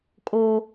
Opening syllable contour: high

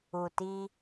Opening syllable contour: low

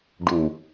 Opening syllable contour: low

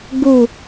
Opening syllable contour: falling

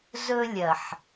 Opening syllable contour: high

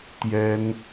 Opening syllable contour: high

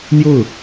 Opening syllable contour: falling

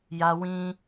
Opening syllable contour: high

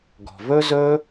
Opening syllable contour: low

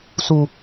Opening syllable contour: low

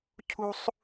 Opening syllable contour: high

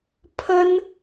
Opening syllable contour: high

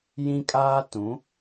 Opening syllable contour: high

